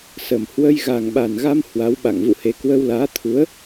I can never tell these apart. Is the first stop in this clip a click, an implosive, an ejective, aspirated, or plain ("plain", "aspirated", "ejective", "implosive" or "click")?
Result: implosive